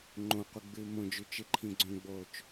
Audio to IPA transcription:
ŋ͡ǃ õ qʷ ɨ ɡ͡b ɨː m õ d͡ʒ ʉ t͡ʃ ɨ ǃʰ ĩ ɡ͡ǀ õ ɡ͡b oː t͡ʃ

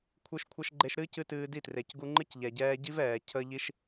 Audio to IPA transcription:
kʷʰ ɨ˦ ʃ kʷʰ ə˦ ʃ ɡ͡ǃ e˧ ʃ ɾ ɨ˦ c ɨ˧ t ɨː˧ d i˦˨ t r e˨ c ɡ u˧ ŋ͡ǃ ɨ˦ c ʎ ɛ˨ ɟ ɛː˧ ɟ i˦ v ɛː˨ cʰ ə˧ ʎ i˧ ʃ

